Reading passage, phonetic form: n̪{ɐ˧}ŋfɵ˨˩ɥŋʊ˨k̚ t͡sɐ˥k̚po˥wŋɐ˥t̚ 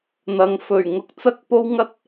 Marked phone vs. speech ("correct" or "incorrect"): incorrect